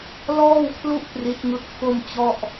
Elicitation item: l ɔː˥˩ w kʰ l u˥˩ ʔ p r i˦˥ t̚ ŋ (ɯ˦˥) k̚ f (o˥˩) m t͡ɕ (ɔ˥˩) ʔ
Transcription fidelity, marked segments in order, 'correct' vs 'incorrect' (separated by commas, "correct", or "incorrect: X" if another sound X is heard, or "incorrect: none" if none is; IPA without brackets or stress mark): correct, correct, correct